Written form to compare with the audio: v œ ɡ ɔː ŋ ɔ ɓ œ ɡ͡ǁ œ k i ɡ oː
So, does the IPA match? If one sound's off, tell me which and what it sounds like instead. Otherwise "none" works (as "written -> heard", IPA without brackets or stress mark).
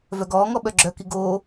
none